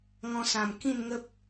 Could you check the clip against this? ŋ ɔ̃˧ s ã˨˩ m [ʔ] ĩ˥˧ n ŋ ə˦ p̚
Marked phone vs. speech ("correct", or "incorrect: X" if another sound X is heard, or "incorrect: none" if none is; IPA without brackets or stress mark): incorrect: k